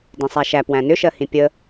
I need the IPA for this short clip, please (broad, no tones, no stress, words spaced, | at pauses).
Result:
dĩsˤæʃæ pwæ̃nʏʃɜhĩ pʲə